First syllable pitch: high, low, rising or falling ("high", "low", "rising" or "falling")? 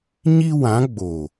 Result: high